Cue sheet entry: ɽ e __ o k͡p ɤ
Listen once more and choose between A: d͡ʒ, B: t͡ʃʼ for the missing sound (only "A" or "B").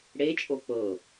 B